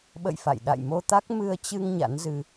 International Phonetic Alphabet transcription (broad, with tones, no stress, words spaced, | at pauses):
ɓə̰˧˨j fa̰˧˨j ɗa̰˧˨jmo˧t̪a˦˥k̚ mɨ˧ə̯t͡ɕɨ˧ŋ ɲa̰˧˥nzɨ˧